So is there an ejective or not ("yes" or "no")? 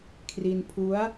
no